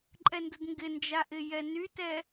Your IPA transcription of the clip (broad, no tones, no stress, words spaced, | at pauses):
ǃʼɛndədŋɡɪnd͡ʒa ʔɪjɛnytɛ